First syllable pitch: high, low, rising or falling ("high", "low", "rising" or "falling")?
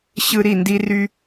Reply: high